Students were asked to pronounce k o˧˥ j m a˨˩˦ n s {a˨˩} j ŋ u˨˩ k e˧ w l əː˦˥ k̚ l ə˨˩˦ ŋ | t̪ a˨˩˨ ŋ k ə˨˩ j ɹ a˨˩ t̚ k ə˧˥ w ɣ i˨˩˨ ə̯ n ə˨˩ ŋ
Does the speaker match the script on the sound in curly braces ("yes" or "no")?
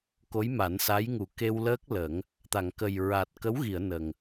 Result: no